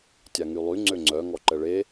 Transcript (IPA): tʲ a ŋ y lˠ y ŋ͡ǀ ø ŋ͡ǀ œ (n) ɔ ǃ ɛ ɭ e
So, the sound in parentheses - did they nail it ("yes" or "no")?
no